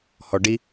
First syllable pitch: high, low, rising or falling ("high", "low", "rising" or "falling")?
low